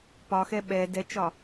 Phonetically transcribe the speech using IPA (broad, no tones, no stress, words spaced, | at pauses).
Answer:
pɒxɛ ɓɛ dɛt͡ʃɒ